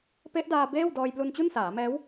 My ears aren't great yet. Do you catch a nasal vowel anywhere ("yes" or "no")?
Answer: no